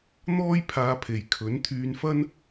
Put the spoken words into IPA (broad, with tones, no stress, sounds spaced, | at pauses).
n̪ ɔː˥ j pʰ aː˧ pʰ e˨ j kʰ ɵ˨˥ n t̪ʰ yː˧ n f ɐ˥ n